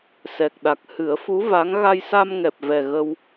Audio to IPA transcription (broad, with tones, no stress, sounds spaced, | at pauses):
s ɛ˨˩ k̚ ɗ a˨˩ k̚ h ɨ˨˩˦ ə̯ f u˧˥ v a˧˥ ŋ ɣ a˧ j s a˧ m ŋ ɛ˨˩ p̚ v ɛ˨˩ ɣ ə˧ w